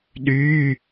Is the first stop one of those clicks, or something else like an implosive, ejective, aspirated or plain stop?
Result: implosive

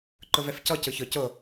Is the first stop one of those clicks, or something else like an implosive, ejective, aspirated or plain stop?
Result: click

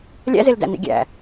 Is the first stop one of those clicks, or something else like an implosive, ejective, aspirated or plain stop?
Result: plain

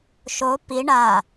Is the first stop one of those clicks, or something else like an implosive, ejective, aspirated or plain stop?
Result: plain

